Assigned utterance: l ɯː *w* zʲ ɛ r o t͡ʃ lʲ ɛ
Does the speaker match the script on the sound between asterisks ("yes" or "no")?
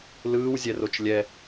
yes